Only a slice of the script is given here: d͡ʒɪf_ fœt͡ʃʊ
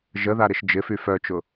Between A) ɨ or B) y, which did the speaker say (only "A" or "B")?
B